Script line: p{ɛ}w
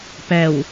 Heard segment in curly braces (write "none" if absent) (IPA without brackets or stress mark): ɛ